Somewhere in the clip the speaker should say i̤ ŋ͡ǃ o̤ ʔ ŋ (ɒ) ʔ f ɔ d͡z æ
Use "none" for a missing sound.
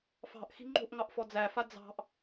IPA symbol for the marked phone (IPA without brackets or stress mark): ɑ